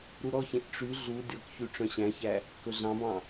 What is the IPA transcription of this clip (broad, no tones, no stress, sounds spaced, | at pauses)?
ɾ u ɾ ɔ ç ẽ ʔ ʈ͡ʂ y ɮ u dʲ ɔ k ç y ʈ͡ʂ œ̃ ɕ æ̃ ç æ | k ɵ ɮ ɑ̃ b ɑ̃